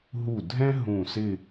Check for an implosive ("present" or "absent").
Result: absent